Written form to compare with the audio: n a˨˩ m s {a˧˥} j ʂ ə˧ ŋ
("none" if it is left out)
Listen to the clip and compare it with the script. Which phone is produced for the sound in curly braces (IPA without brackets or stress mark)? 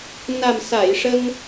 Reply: a˨˩˨